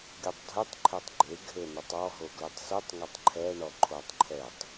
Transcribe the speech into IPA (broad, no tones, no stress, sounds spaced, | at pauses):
ɡʲ o tˤ dʱ ɨ tˤ ǃʰ ɛ tˤ ɡ͡ǃ e ɡʱ ɘ n ɘ tˤ ɔ ɦ o ɡ l ɨ tˤ s ɨ tˤ ŋ ɛ tˤ ǃʰ ɛ ɳ ɔ ǃʰ o tˤ ǃʰ ɛ tˤ